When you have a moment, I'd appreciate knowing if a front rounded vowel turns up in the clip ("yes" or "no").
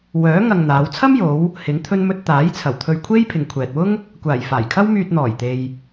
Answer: yes